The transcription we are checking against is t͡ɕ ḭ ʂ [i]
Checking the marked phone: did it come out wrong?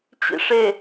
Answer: yes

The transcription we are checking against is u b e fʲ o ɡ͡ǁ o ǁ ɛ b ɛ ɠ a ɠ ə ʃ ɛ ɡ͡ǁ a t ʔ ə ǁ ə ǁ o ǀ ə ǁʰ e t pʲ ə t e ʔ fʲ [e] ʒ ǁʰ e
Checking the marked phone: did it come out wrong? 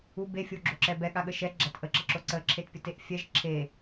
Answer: yes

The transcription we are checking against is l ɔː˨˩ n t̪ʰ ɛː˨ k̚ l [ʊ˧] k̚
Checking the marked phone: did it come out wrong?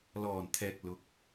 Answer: yes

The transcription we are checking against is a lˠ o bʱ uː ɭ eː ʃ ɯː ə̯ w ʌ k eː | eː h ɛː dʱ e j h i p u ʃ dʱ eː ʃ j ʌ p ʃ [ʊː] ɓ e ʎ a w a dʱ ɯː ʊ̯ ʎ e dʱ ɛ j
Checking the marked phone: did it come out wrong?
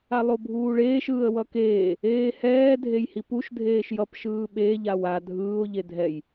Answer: yes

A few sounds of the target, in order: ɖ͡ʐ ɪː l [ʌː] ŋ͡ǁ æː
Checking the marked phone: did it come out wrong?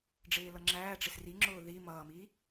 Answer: yes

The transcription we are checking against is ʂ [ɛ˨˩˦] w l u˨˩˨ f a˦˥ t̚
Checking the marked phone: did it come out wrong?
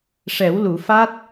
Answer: no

